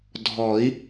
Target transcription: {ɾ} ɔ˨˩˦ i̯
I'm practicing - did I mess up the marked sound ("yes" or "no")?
yes